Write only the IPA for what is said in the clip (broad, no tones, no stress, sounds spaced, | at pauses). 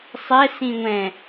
sˤ ɛ s ĩ ŋʷ ɛ̃